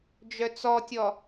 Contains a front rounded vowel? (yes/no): yes